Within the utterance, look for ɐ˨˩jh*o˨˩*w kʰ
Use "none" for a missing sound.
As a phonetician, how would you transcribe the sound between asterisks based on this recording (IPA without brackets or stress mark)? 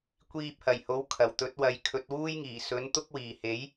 o˨˥